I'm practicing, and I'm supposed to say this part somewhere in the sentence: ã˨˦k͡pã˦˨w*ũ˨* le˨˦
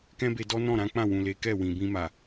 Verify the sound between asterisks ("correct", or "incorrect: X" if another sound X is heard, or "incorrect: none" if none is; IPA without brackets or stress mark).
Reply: correct